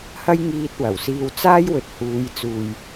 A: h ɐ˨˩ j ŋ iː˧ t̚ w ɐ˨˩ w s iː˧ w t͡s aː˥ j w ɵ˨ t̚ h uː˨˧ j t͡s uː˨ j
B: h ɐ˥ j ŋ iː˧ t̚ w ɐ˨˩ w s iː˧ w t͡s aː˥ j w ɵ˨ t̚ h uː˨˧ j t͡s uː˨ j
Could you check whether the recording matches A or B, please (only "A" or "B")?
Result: B